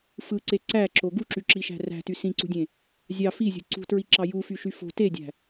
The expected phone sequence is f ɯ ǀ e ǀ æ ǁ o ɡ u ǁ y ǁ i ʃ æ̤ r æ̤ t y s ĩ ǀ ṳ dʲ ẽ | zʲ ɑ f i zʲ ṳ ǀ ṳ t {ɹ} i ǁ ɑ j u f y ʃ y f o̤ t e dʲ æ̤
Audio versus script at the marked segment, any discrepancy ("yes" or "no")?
no